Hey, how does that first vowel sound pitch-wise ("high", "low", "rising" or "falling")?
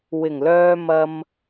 low